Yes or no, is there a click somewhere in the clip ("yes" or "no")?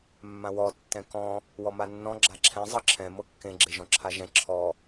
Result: yes